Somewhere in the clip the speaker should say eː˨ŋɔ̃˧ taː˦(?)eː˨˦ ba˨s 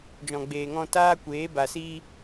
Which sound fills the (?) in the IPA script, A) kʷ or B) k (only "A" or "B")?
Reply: A